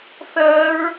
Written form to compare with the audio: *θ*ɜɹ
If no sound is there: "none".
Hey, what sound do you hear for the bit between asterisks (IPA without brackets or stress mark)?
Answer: θ